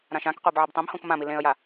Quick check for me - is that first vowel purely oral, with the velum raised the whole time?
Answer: no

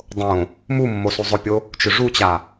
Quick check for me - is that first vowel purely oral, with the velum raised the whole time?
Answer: no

